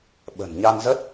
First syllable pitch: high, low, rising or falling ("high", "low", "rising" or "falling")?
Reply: low